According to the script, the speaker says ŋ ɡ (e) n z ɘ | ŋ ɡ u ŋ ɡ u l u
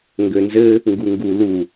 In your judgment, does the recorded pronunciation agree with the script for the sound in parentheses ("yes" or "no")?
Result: no